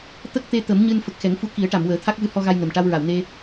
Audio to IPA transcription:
t̪ə˦˥k̚t̪e˧ t̪ə˨˩˦mɲɨ˧n fə˨˩k̚xɛ˨˩˦ŋfu˧˥ ki˨˩˦ə̯ʈa˨˩˨mwəː˨˩˦ t̪ʰa˦˥k̚vɨ˧hɔ˧ɣa˧j nə˨˩m ʈa˧wɹa˨˩˨wne˧

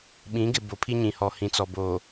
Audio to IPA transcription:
ɓĩ˨˦ɡɪ˨ bo˨pʰi˦ɲĩ˨hɔ˨ hĩ˨t͡sɔ˨ bo˨

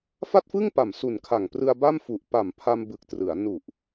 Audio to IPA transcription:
fa˥˩t̚fɯ˥˩ŋpa˨˩m su˨˩nkʰa˨˩ŋprɯ˧a̯ ba˥˩m fu˨˩ʔ pa˨˩mpʰa˧m bɯ˨˩k̚trɯ˩˦a̯ nu˨˩ʔ

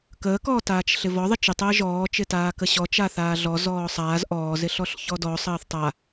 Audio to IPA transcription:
kəːkɔː taːt͡ʃɬɪvɔ ðˤɪt͡ʃɪtˤəː ʒɔːt͡ʃɪtaː kəɕɔ t͡ʃaθaːɮɔ zɔːsˤaːz ʔɔːzɪɬɔɬ çɔdɔ sˤəːθtˤa

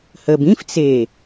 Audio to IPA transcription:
həb ĩf t͡se

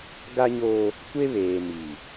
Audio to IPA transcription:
ɡa˦ɲoː˦ | kʷe˦βeː˨mi˨

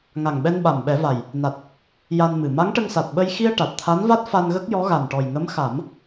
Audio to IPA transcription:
ŋa˨˩ŋɓɛ˧nɓa˨˩mɓɛ˨˩˦ va˨˩j | na˨˩t̚ | ja˧nmɨ˨˩ ma˧˥ŋʈə˧ŋsa˨˩t̚ɓə˧j xi˧ə̯ ʈa˨˩t̚t̪ʰa˧˥nva˦˥t̚ fa˧nɣə˦˥k̚ jɔ˧˥ɣa˨˩nʈɔ˨˩j ŋə˧˥mxa˨˩˦m

